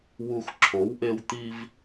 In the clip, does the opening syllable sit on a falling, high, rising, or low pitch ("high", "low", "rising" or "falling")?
low